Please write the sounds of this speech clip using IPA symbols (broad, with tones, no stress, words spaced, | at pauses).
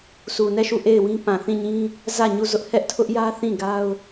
sʰu˨nɛ˦˨ʃu˦˨ ʔe˦˨ɪ̯wĩ˦ pã˨θĩ˦˨ɲĩ˦ | zä˦˨ɲu˦˨zʊ˦ʔ hɛ˦ʔtʰʊ˦ʔjä˦ θĩ˦˨ɡa˦ʊ̯